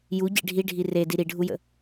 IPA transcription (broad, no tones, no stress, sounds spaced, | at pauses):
j u ɟ ḭ ɖʱ i ɖʱ i r e d i ɾ i ɖʱ u j ə̰